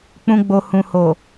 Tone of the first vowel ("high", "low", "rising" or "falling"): low